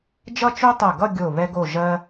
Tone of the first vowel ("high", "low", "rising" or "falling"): falling